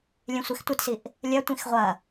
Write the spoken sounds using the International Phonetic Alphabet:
lʲẽsʷextʷetsiʔ | lʲɐtʷĩx ʁʷɐ

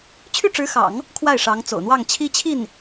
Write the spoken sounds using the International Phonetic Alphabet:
t͡ɕʰy˥˩ʈ͡ʂɻ̩˧˥xɑ̰˨˩˦ŋ | kʰwa˥˩ɪ̯ ʂɑ˧˥ŋ t͡so̰˨˩ʊ̯n̪wɑ˥˩ŋ t͡ɕʰi˥t͡ɕʰi˥˩n

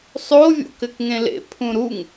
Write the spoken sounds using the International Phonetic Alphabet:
sˤo vʲo̰kɘkŋẽlḛ pʰũɾuŋ

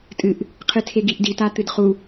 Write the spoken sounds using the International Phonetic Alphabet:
tʼɨʔ | qʰɨtʰeɡiʔdi tat̪ɨdχu

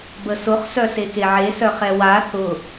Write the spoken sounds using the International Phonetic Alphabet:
bəsʊχ sœsekeʕe sœχɛwa θʊ

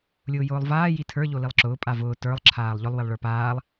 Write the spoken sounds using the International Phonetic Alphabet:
lʲʊːjʊːlˠvaː jitʰə˞ ʎolilˠǁʊː pʼavʊː tə˞lˠ ǁʰaːlˠʎʊlˠ wilˠɭə˞paːlˠ

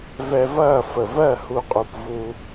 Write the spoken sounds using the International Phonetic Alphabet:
vɛ˧vɐː˦˨ fə˨vɜ˦˨ hu˧qʼu˨p vu˧

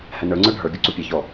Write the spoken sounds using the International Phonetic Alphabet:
hɛnə˞ŋ͡ǀə˞ ɖʱə˞ ɡʲuǀupʲɛçɔ

